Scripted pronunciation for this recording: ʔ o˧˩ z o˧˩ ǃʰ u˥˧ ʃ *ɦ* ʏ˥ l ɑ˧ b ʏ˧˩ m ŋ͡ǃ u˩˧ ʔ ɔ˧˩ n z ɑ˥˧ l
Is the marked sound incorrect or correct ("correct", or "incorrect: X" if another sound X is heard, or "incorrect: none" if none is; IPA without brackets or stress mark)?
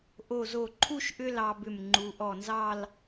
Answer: incorrect: ʔ